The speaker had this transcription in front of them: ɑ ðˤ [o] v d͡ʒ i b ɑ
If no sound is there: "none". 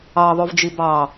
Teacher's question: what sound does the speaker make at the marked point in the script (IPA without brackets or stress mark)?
o